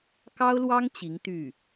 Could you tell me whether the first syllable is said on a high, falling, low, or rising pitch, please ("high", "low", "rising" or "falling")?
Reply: high